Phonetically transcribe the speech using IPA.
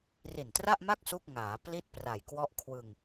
r i˨˩ n t r a˥˩ ʔ m a˥˩ k̚ s u˥˩ k̚ ŋ aː˩˦ p l i˥˩ t̚ p r a˨˩ j k w ɔ˦˥ ʔ kʰ w ɯ˧ ŋ

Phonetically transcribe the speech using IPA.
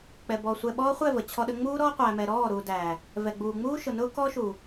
k͡p ɛ˨ b ɔ˨ sʷ ɛ˨ ɓ ɔː˦ χʷ ɛ˦˨ v ə˨ t͡ɕʰ ɔ˦ ɗ ə˦ ŋ͡m uː˦ ɾ ɔː˦ qʷ æː˨ m ɛ˨ ɾ ɔː˦˨ ɾ u˨ d æ˨ | v ɛ˨ ɡ͡b uː˨ ŋ͡m uː˦ ʃ ʊ˨ n ʊː˦ k ɔː˦ ʃ u˨

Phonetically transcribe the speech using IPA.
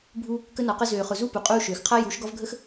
bʱ u˧ | k ə˧ n ɒ˨ q ə˧ z øː˨ χ ʊ˨ z u˦˨ p u˨ qʼ uː˧ ʃ øː˨ x qʰ a˦ j u˨˦ ʃ ɡ ɒ˦ v ɡʱ ə˦ x

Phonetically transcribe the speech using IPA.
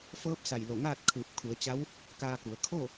f ɤː˧˥ p̚ s a˧˩ j l o˧˩ ŋ aː˥˨ t̚ kʰ ɯː˧˩ p̚ kʰ u˩˧ ə̯ t͡ɕ a˧˥ w | k aː˧ k u˩˧ ə̯ kʰ o˥˨

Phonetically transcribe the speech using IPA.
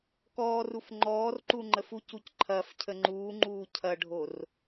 k ɔː r u f ŋ͡ǃ ɔː r ǃ u ŋ͡ǃ ə f u c u c ǃʰ ɐ f cʰ ə ŋ͡ǃ uː ŋ͡ǃ uː cʰ ɐ ɖʱ o r

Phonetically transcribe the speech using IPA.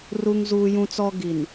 r u˦ ŋ z uː˦ j ũ˦ t͡s ɔ˦ ɡ i˨ n

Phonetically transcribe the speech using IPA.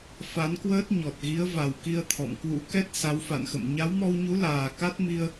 f a˨˦ n k w əː˦˥ t̚ ɲ ɔ˨˩ t̚ ɣ i˨˦ ə̯ v a˨˩ w k i˧ ə̯ t̪ʰ ɔ̰˧˨ m k w ṵ˧˥ k ɛ˦˥ t̚ s a˨˦ w f a̰˧˨ n x ə̰˧˨ m ɲ a˨˦ w m ɔ˧ w ɲ u˨˦ l aː˨˩ k a˦˥ t̚ m i˧ ə̯

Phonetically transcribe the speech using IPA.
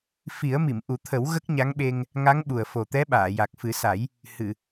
f i˨˩˦ ə̯ m i˨˩˨ m ʔ u˨˩˦ t̪ʰ ə˨˩˦ w ɣ ə˦˥ k̚ ɲ a˧˥ ŋ ɓ e˧ ŋ | ŋ a˧˥ ŋ ɓ u˨˩ ə̯ f o˨˩ t̪ ɛ˧˥ ɓ aː˨˩˨ j a˨˩ k̚ f ɨ˨˩˦ s a˨˩˦ j | h ɨ˨˩˨

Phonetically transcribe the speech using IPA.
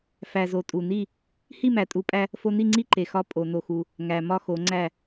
f æ˨˩ z o˨˩ tʼ u˨˩ n i˥˨ | h i˥˨ m æ˨˩ tʼ u˨˩˦ pʼ æ˧ | f o˧ n i˥˨ ŋ͡ǀ i˥˨ ǃ e˨˩ x ɒ˧ pʼ o˨˩˦ n o˧ x u˧ | ŋ æ˨˩ m ɒ˥˨ x o˨˩˦ ŋ͡ǀ æ˥˨

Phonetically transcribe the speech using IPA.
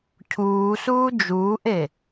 cʰ uː s uː d͡ʒ uː ʔ e

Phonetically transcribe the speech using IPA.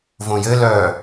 v õ j ɘ l œ

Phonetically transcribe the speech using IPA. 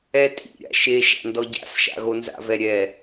ɛ tʼ ḭ ɾʲ a̰ ʃ e ʃ a̰ n d ɔ ɟ a̰ s ʃ a̰ ɣ o n z a̰ v ɛ ɾʲ ɛ

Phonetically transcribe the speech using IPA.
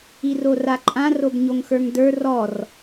i r o r a ǃʼ ã r o b ɲ o ŋ x ə˞ ŋ d ə˞ r ɔ r

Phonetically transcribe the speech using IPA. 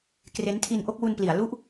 k r e˦˥ n tʰ i˧ n ʔ o˥˩ k̚ w u˧ n p l i˩˦ a̯ l u˥˩ ʔ

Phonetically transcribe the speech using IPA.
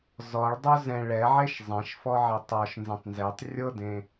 z ɔ ɭ dˤ ʊ z ɛ̃ ɭ ɛ ʕ e ʃ zˤ ɛ̃ ʃ f ɔ ʕ e tˤ ɔ ʃ n z ẽ tˤ n z e tˤ rʲ ɤ d ẽ

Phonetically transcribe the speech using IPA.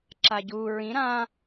ǁ a ɟ u ɹ ĩ ɾ ã

